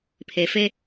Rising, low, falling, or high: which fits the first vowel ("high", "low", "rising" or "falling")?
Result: low